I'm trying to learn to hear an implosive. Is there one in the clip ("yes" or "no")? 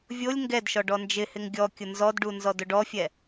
no